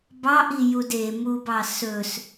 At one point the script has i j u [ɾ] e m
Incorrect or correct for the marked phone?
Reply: incorrect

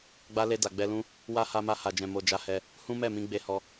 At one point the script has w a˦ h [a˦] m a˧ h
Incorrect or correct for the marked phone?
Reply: incorrect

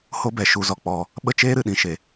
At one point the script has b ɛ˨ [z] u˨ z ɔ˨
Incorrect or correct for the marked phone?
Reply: incorrect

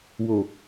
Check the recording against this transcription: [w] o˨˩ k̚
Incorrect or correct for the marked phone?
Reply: correct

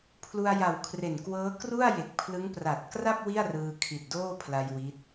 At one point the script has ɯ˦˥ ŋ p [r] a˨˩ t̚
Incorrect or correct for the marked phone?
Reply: correct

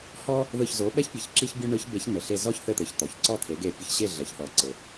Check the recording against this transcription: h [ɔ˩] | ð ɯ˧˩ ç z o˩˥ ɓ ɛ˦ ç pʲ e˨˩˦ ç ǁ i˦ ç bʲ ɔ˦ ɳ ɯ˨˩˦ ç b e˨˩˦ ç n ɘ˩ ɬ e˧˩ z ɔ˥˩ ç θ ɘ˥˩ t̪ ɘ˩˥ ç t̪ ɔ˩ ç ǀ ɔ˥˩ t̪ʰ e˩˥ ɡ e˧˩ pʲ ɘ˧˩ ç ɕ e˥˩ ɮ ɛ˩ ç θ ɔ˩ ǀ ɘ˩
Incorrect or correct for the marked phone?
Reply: incorrect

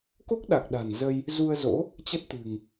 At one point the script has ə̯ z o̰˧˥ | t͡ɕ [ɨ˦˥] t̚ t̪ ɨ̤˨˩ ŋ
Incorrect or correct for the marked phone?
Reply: incorrect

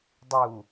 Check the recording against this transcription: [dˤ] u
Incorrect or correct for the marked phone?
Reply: correct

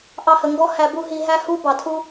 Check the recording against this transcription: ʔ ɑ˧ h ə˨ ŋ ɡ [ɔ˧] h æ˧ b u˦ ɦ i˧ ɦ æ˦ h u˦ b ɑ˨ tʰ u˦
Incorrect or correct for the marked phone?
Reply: incorrect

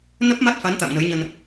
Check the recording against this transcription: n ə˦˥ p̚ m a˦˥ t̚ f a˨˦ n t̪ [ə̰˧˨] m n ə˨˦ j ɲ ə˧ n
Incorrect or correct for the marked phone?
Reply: incorrect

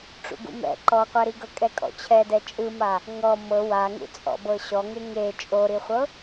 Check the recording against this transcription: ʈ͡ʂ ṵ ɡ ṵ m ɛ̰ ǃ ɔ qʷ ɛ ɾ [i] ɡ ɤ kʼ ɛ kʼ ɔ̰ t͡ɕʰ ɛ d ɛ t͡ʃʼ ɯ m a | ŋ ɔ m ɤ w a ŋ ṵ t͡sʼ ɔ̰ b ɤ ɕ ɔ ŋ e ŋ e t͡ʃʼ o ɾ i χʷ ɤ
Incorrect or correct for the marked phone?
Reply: correct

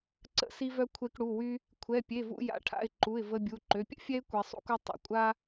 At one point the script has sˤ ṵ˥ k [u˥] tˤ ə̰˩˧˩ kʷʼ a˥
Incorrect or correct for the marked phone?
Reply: correct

